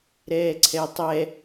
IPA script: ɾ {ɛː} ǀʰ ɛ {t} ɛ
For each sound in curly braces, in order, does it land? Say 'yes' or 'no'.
yes, no

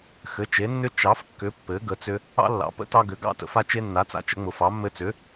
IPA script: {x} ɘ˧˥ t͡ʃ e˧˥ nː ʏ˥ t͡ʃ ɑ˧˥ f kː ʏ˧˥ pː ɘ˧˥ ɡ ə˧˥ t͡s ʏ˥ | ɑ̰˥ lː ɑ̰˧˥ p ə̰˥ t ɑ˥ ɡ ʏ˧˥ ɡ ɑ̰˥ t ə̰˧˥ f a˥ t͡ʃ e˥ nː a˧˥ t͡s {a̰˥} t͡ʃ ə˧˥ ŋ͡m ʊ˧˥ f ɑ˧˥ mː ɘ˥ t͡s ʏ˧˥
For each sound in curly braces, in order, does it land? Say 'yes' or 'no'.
yes, yes

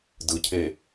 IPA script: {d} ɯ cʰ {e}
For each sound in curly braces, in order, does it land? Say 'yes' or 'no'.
yes, yes

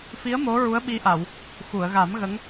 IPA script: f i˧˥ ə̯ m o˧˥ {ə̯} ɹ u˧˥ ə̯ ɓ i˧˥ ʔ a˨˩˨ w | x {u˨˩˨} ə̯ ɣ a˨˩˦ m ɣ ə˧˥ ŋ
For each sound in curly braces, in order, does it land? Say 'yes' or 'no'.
no, yes

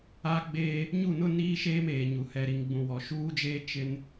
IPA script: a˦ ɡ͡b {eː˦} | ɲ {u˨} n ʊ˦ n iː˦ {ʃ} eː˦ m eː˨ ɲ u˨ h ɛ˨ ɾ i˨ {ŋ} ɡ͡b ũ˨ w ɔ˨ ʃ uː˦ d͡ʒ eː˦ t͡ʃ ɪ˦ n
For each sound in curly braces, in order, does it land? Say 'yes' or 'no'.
yes, no, yes, yes

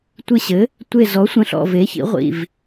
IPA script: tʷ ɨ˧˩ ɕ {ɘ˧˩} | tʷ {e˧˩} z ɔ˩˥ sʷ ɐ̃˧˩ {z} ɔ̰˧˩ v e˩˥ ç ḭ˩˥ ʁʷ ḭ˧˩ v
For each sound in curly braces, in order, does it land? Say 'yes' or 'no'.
no, yes, no

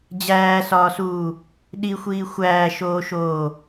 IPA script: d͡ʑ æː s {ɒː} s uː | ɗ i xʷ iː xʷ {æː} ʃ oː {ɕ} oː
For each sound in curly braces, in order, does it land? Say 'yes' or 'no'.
yes, yes, no

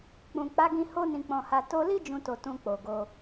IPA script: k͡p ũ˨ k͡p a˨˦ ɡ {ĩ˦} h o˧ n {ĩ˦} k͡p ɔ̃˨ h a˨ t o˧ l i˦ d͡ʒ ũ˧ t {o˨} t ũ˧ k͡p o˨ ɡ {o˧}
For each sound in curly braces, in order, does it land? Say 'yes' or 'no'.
no, no, yes, yes

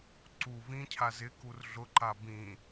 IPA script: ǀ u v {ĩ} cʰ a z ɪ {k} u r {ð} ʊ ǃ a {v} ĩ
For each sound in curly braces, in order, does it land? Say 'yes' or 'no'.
yes, yes, no, no

